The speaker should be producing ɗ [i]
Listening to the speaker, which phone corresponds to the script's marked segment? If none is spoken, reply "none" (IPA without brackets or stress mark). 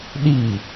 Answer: i